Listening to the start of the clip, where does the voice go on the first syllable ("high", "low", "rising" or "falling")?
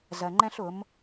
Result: low